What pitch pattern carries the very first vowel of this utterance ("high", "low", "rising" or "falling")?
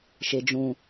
low